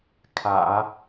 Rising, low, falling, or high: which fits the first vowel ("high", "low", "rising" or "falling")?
low